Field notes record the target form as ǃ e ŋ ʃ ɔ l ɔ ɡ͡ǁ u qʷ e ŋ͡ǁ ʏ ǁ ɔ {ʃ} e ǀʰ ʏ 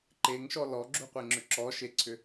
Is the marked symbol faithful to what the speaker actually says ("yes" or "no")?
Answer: yes